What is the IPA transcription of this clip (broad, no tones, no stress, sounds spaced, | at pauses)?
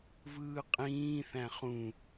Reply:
v ɯː qʼ ĩː θ æ̃ χ ũ